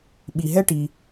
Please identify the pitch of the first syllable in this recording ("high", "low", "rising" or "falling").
low